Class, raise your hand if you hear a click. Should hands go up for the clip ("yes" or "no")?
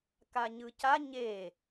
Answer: no